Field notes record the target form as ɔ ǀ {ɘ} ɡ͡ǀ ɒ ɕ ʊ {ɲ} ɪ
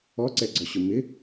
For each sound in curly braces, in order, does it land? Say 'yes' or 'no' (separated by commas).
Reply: no, no